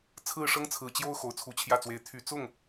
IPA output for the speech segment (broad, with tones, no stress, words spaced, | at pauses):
t͡sʰɹ̩˥˩ʂɤ˥ŋt͡sʰɹ̩˨˩t͡ɕjo˥ʊ̯ xo˨˩ʊ̯t͡sʰu˧˥t͡ɕʰjä˥˩t͡swe˧˥ɪ̯ t̪ʰy˨˩ t͡sʊ˥˩ŋ